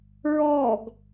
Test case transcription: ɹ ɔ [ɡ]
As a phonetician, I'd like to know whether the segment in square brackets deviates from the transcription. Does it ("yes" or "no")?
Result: no